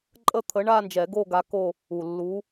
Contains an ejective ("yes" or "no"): yes